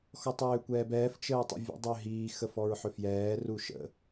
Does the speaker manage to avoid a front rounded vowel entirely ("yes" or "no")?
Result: no